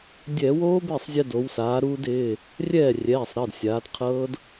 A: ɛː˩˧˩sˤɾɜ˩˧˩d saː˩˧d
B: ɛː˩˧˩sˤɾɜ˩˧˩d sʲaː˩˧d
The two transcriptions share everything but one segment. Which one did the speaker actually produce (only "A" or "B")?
B